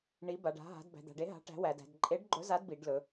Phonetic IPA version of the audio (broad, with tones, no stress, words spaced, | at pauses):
ɳi˨˥ba˩˧ɖ a̤˩˧ɦa̤˩˧d bæ̤˩˧d̪a̤˩˧ɖe˨˥ ɦa̤˨˥ʈæ̤˨˥wæ˩˧dæ̤˩˧d ǃʼe˨˥ɖ ɡ͡ǃɵ˨˥za˨˥dbi˩˧ɖlɵ˩˧